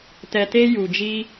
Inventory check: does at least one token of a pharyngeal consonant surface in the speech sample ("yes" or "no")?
no